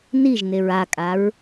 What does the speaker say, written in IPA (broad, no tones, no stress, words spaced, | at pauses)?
niʒneɹ akʼaɹ